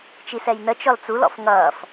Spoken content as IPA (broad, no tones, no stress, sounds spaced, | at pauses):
t͡ʃ i s ɛ j n ə t͡ʃ ɔ l t͡s u l ɔ̰ f ŋ ʌː f